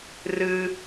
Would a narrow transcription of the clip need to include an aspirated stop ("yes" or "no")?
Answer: no